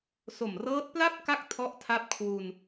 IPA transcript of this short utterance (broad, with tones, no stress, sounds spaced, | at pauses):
s o˨˩ m r ɤː˦˥ t̚ p l a˥˩ p̚ k a˥˩ k̚ tʰ ɔ˦˥ ʔ tʰ a˦˥ p̚ kʰ w u˧ n